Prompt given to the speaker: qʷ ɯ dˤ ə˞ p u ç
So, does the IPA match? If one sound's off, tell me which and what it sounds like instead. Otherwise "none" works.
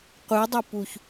none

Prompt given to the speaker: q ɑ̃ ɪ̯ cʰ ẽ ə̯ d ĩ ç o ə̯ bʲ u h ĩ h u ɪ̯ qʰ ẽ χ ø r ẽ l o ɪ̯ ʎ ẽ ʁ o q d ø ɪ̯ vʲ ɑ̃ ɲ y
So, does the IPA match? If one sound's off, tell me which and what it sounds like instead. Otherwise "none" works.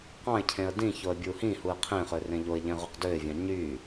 l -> ʎ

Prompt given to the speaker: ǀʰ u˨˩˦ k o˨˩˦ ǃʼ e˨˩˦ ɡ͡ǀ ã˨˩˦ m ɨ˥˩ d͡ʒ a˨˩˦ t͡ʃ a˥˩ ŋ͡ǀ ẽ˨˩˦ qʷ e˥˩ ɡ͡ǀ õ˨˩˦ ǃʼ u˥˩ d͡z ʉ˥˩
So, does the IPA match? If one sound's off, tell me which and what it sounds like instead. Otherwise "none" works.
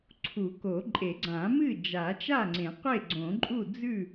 none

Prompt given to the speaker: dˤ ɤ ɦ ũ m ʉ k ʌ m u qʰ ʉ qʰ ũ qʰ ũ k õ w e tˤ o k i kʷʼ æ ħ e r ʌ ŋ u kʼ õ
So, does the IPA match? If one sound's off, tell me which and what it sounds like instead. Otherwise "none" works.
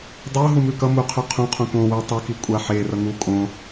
æ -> a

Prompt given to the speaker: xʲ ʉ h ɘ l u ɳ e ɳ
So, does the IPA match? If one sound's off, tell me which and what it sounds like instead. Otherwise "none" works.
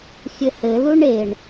ʉ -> ɘ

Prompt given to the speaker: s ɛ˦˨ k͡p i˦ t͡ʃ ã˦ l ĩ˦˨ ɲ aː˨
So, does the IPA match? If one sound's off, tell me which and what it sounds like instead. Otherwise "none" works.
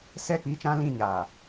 none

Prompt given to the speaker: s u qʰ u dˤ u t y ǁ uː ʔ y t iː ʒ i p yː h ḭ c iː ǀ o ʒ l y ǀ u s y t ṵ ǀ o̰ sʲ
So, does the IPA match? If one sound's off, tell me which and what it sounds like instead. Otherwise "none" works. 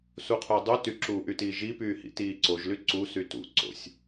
c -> t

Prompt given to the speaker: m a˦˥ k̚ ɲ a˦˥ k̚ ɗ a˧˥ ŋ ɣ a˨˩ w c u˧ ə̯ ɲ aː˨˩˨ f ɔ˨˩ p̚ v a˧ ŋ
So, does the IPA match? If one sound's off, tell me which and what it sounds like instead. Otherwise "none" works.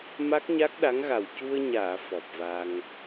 none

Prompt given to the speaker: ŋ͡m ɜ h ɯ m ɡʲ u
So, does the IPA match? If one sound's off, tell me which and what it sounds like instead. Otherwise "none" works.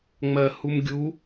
ɯ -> u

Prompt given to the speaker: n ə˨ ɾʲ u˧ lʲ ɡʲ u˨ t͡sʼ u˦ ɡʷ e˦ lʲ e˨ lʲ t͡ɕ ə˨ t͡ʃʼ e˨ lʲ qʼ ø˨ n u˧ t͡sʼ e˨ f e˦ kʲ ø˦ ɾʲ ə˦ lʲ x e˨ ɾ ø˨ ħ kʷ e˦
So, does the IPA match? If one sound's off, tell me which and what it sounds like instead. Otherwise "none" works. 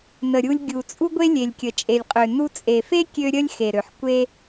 t͡ɕ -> kʲ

